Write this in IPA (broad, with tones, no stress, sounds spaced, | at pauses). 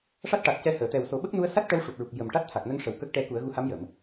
ʂ a˦˥ t̚ ʈ a˨˩ t̚ c ɛ˧ h əː˨˩˨ t̪ ɛ˨˩ w s o˨˩˦ ɓ ə˦˥ k̚ n u˧˥ ə̯ s a˦˥ t̚ ʈ ɛ˧˥ w ʂ u˨˩ t̚ ɹ u˨˩ k̚ j ə˨˩ m ʈ a˦˥ t̚ t̪ʰ a˨˩ k̚ n ə˧˥ ŋ ʂ ə˨˩ w k ə˦˥ k̚ ʈ ɛ˧˥ k u˨˩˦ ə̯ ɣ u˧ h a˧˥ m j ə˨˩˨ m